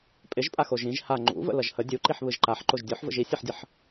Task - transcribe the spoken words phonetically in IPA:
pʼ ɪ ʒ pʼ a x o ʒ ĩ ʒ h a ŋ͡ǃ ṵ v ə̰ l ʌ ʒ h ə dʲ u ǃ i ħ β ɯ ʒ ǃ a ħ ǃ o ʒ dʲ o ħ v ə̰ ʒ i sʲ ɯ ħ dʲ ə ħ

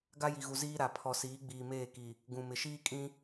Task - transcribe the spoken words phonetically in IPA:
ɡ a˦ j i˨ ɣ u˨ z iː˦ ɾ a˨ pʰ ɔ˨ s iː˨˦ ɡ͡b iː˨ m eː˦˨ k i˨ | ɡ ũ˨ m ɪ˨ ʃ iː˦ kʼ ĩ˦

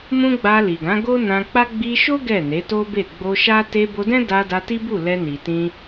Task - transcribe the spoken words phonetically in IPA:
m ũ˦ ɡ͡b a˧ l i˨ ɡ ã˨˦ ɡ o˦ n ã˧ k͡p a˦ ɡ͡b i˧ ʃ o˦ ɡ ɛ˦˨ n e˨˦ t o˦ b e˦˨ ɡ͡b o˧ ʃ a˦ t e˧ b o˧ d ɛ̃˦ d a˧ d a˧ t i˦ b u˦˨ l ɛ˧ n i˨ t ĩ˧

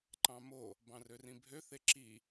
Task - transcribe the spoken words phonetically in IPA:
ǃ ɑ̃ m o | b ɑ̃ r ø r ĩ bʱ ø θ e ǁ i

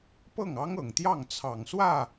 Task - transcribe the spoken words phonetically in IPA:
p ɤ˥˩ ŋ ɑ˥ ŋ ɤ˨˩ ŋ t̪ j ɑ˥˩ ŋ t͡sʰ ɑ˨˩ ŋ s w ä˥˩

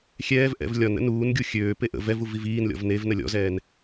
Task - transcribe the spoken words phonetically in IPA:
xʲ ɛː v ʔ ɛ̰ v lʲ ɒ n ə̰ n uː n ɡʲ u xʲ øː p e ʔ ə̰ v ɛ v u v i v iː n lʲ ɔ̰ v n e v n ə lʲ ɔ̰ z ɛː n

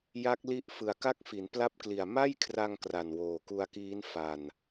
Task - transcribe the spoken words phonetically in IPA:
j a˦˥ k̚ l i˦˥ ʔ f ɯ˨˩ a̯ k a˥˩ k̚ f i˩˦ n p l a˦˥ p̚ k l i˨˩ a̯ m a˥˩ j kʰ r a˧ ŋ k r a˨˩ n w oː˨˩ k u˧ a̯ k iː˦˥ n f a˧ n

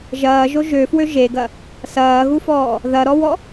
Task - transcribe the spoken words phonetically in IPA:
ʒ ɐː ʒ o ʒ ø f w ø ʒ e ɡ ɐ | s ɐː ɣ u f ɔː | ð ɐ ɾ ɔ w ɔ

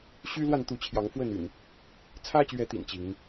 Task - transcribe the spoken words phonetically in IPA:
ɕ y˦ l w a˥˨ n t̪ u˨˦ t͡ɕʰ j ɑ˨˦ ŋ f w ə˥˨ n y̰˨˩ n | t͡sʰ ä˦ t͡ɕ ɥ ɛ˨˦ t̪ ḭ˨˩ n t͡ɕ i˨˦ ŋ

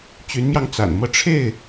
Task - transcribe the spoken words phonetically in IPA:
t͡ɕ y˨˦ n m j ɑ˧ ŋ t͡s a̰˨˩ n m ɤ˥˨ ʈ͡ʂʰ e˥˨ ɪ̯

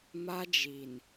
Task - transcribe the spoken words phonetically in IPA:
m a˦ d͡ʒ iː˨ n

